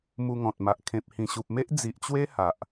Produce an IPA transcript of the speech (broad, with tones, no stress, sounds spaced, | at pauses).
m u˧ ŋ ɔ̃˨ t̚ m a˨ ʔ kʰ ẽ˨ p̚ h ĩ˨˩ ɕ u˨ p̚ m e˦ ʔ d͡z i˨ ʔ t͡ɕ w e˦ h a˨ ʔ